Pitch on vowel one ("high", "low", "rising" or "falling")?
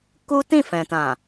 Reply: high